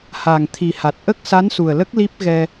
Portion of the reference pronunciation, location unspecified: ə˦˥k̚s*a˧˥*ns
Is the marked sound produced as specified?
yes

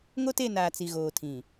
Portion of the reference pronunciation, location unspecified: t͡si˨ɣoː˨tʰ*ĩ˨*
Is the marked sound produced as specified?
yes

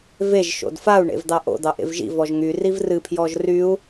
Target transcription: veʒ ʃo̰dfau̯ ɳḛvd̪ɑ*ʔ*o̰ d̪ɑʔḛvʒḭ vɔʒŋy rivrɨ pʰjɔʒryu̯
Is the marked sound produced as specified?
yes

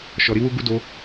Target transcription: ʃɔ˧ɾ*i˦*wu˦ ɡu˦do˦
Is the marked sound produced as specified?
yes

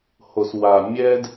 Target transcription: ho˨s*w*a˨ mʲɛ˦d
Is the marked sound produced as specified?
yes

